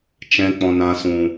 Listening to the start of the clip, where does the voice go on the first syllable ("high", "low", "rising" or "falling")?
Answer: low